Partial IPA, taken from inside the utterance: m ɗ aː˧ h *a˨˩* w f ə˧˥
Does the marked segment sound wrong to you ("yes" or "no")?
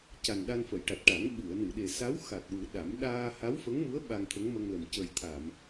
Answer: yes